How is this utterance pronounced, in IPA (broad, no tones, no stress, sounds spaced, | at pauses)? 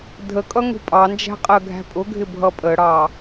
dʱ ə kʼ ʌ ŋ ṳ pʼ ɑ n d͡ʒ æ̤ qʼ ɜ ɡʱ æ̤ pʼ ʊ ɡʱ ɪ bʱ ʌ pʼ ə ɽ ɑ